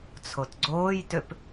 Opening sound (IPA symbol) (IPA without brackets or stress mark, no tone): t͡sʰ